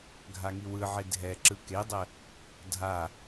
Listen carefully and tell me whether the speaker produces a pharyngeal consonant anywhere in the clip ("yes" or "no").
yes